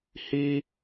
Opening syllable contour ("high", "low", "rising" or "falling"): high